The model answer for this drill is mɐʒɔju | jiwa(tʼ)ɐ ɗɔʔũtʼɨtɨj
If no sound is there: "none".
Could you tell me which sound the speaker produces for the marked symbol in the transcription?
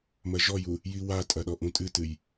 tʼ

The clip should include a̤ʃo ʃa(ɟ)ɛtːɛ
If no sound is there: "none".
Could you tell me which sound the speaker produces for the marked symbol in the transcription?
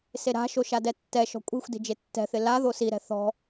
d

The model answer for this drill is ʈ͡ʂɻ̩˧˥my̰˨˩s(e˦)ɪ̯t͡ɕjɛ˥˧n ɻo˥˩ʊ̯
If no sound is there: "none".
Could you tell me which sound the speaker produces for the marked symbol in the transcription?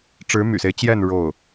e˦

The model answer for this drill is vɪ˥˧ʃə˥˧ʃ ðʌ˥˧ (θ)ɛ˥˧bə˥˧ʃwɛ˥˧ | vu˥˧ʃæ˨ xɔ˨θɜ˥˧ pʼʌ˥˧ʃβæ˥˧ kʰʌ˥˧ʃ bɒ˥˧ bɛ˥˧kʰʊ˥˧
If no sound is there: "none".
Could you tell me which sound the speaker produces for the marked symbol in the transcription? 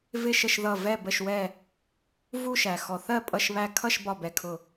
v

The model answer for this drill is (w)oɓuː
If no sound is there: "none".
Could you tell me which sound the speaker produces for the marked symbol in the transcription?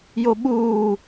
j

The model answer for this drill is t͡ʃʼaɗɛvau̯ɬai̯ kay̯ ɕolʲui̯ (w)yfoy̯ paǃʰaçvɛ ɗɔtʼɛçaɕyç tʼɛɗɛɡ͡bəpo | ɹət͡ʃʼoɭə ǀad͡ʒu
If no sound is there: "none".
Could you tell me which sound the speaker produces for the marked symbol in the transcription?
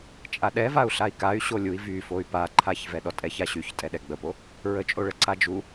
v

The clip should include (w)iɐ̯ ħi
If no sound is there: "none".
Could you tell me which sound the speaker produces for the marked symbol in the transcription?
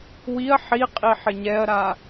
w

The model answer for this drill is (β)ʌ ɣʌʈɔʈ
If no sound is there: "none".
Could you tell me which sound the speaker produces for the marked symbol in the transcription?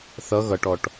θ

